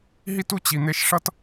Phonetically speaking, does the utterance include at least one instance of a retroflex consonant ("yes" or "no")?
yes